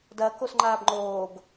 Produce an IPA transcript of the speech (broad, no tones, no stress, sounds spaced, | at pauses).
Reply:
d ɐ k o s ŋ͡ǃ aː b ŋ͡ǃ oː ɡ